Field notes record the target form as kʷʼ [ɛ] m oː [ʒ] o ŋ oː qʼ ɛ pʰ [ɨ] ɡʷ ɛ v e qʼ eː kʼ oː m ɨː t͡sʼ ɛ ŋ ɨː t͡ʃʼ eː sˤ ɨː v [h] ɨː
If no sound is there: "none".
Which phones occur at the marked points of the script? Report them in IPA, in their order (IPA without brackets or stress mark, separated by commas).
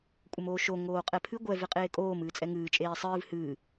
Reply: ə, ʃ, ɨ, h